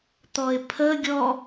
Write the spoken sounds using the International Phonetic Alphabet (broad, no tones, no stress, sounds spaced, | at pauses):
t̪ ɔ ɪ̯ pʰ ə ɡʲ ɔ